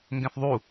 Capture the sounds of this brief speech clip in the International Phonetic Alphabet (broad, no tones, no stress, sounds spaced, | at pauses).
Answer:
ŋ ɡ ɛ̃ θ ðˤ u